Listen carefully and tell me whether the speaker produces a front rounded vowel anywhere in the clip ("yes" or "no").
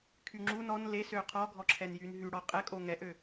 yes